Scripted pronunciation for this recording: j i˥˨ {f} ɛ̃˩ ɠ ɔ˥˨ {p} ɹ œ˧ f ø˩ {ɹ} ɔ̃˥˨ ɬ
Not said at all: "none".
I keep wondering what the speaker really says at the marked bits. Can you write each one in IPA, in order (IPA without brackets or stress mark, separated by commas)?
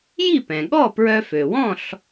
p, p, w